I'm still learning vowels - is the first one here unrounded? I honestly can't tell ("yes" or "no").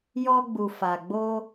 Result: no